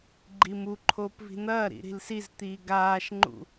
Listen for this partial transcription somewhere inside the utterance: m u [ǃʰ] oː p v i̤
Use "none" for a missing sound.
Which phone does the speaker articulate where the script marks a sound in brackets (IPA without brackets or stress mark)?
ǃʰ